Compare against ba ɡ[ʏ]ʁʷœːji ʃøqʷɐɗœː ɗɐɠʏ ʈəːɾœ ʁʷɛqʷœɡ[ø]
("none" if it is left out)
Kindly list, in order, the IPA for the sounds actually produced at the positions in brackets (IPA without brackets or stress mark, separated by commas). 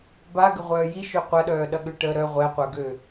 ə, ø